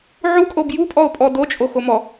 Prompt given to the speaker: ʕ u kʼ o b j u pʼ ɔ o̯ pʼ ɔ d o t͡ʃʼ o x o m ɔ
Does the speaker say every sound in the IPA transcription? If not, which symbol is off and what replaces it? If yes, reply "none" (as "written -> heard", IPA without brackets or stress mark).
none